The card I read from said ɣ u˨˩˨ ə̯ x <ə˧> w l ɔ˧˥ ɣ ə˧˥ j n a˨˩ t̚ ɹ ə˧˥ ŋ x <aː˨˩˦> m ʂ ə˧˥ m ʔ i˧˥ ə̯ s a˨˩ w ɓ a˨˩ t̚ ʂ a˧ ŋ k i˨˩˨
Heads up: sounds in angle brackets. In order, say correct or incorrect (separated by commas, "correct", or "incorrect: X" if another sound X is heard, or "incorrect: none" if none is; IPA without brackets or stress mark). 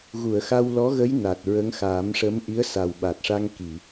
incorrect: a˧, correct